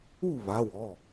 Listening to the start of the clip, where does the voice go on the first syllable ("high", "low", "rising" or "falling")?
falling